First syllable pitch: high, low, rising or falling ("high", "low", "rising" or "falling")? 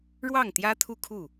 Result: falling